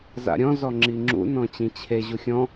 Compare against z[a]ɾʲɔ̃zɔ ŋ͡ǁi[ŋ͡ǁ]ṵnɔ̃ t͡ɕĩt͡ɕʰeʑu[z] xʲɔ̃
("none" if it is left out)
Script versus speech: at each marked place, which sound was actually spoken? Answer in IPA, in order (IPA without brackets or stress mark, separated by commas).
a̰, ŋ͡ǁ, none